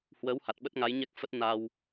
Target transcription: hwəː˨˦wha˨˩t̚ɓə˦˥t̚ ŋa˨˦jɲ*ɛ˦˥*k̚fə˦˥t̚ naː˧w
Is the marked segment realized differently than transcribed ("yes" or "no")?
no